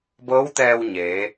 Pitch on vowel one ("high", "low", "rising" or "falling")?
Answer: rising